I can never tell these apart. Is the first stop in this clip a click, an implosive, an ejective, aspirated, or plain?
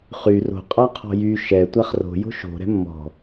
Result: ejective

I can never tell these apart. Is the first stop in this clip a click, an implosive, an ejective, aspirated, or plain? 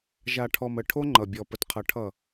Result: aspirated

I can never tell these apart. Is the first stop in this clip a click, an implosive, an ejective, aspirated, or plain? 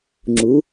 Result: click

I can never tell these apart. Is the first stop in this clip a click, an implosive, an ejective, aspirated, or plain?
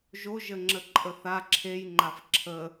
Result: click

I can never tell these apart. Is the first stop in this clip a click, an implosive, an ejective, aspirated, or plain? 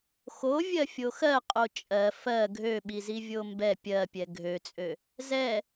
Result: ejective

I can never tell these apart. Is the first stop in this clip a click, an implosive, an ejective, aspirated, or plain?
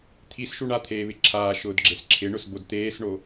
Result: aspirated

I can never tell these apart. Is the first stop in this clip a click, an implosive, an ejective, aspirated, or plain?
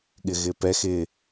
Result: implosive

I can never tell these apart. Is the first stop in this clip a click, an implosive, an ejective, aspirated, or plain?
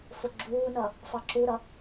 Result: click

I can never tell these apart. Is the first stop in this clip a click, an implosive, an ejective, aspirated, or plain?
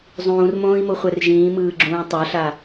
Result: click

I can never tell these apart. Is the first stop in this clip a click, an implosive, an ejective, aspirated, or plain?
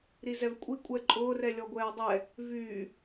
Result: ejective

